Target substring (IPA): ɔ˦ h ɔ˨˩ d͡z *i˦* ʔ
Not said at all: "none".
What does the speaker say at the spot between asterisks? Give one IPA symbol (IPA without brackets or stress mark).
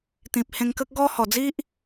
i˦